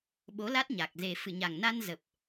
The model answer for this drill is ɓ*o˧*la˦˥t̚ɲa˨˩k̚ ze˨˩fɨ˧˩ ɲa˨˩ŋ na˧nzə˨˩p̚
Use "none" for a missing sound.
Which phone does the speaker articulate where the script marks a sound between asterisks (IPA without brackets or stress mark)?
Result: o˨˦